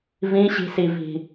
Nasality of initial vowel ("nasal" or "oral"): nasal